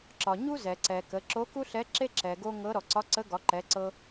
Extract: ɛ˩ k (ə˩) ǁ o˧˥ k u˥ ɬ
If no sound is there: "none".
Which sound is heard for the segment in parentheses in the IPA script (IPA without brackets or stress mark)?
ə˩˧